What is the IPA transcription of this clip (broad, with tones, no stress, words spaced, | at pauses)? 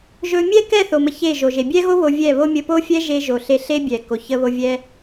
ʒɵ˧ mʲɛ˦kɛ˦˨θo˨ mə˧çe˦˨ʒo˨ ʒe˨bʲɛ˦ɣo˦ βo˧vʲɛ˦˨βo˦ mʲə˧po˦fʲɛ˦ʒe˧ ʒo˨ɬe˧ ɬe˦bʲɛ˨ ko˨çə˧βo˧ vʲɛ˦